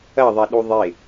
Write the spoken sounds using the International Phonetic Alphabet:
ɐ ðˤ ɛ ɗ u ðˤ e

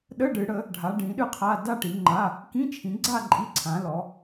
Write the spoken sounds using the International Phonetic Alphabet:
ɗ ə˧˥˧ ɖ ɨ˨˦ ɽ ə˨˦ | ɖʱ a˨˦ ɖ ĩ˨˦ ɗ ɨ˥˧ qʰ a˧˥˧ d a˥˧ ʈ i˨˦ ŋ͡ǃ a˧˥˧ | k ĩ˧˥˧ t͡ʃʰ ĩ˨˦ ɡ͡ǀ a˥˧ ǃʼ i˧˥˧ ǀʰ ã˨˦ l ɔ˨˦

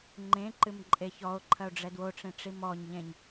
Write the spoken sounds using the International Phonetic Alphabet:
ŋ͡ǃ ẽ ǃ ɨ m ǃʼ e ç ɔ o̯ ǃʰ ɐ o̯ ɖ͡ʐ ɛ d w o ʈ͡ʂ ẽ ʈ͡ʂ i m ɔ ɲ ʎ ẽ ɲ

